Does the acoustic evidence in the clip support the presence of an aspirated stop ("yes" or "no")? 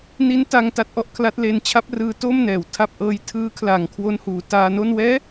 yes